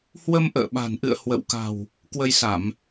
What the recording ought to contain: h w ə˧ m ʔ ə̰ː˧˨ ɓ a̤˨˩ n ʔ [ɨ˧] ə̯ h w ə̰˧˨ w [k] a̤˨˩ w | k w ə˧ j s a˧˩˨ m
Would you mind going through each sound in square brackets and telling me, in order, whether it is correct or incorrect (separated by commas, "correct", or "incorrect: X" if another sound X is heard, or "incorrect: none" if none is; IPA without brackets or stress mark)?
incorrect: ɨ̰˧˨, correct